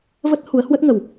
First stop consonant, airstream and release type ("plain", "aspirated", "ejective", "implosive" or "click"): plain